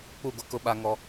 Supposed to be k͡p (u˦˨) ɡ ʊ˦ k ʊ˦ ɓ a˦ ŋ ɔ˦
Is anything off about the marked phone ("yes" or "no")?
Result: no